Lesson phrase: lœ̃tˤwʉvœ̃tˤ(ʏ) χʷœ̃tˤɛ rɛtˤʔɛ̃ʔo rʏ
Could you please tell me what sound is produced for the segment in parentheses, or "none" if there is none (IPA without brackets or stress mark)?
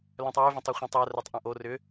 ʏ